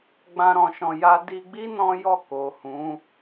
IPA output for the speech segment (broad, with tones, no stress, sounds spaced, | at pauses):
ɡ͡b ã˧ ɾ ɔ̃˧ ʃ ɔ̃˧ j a˦ d i˧ ɡ͡b i˦ n ɔ̃˦ j ɔ˦˨ k o˨ h ũ˨˦